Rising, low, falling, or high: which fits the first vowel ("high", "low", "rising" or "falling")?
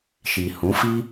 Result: low